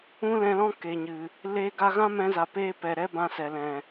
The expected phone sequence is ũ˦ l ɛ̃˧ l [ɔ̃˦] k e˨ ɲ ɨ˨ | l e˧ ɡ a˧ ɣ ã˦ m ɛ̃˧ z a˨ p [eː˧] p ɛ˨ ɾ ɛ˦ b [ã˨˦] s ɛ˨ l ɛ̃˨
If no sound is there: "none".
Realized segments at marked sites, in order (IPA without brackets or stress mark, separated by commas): ɔ̃˦, eː˧, ã˧